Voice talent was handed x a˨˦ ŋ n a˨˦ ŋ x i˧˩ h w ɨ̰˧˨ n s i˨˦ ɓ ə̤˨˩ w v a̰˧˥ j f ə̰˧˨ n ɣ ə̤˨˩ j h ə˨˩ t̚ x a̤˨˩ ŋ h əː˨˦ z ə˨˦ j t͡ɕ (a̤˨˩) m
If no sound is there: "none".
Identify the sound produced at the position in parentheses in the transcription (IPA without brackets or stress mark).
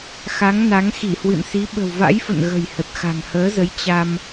a˧